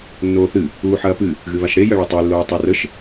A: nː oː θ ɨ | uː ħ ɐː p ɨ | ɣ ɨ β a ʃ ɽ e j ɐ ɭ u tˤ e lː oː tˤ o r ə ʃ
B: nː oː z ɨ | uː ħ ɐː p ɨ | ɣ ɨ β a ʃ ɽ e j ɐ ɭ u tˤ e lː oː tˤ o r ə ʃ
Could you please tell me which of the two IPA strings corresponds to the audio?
A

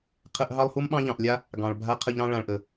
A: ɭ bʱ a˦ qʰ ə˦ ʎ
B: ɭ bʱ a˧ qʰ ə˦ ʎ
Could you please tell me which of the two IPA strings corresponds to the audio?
A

